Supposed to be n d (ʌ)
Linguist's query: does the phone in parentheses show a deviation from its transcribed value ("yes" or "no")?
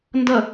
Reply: no